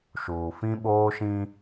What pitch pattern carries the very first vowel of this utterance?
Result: low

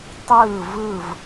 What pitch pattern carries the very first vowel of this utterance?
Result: falling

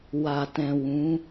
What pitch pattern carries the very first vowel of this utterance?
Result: low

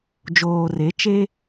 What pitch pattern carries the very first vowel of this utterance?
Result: low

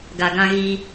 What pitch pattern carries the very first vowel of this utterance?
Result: low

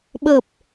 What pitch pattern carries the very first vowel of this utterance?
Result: low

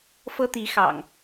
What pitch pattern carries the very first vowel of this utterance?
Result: high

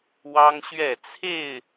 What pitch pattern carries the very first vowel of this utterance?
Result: high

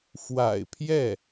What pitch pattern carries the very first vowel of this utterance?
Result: low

